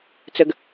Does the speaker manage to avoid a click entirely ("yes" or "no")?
yes